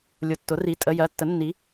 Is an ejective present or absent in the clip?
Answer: present